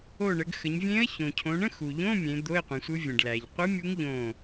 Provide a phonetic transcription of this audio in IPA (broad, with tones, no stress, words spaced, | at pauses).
o˧˩ɳə˩˧ɡxə˩˧ɲvʲẽː˧˥ə̯ çõ˩cʰõ˩˧ɳə̃˧˥˧ xu˩ʎõ˧˥˧mʲẽ˩˧ d̪o˧˥˧ɪ̯qʷẽ˩˧sʷɯ˧˥ vʲə̃˩ɖlæ˩ʎqʷɯ˧˥mʲu˧˥ŋ ʎõː˧˩